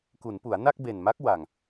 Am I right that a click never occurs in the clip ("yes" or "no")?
yes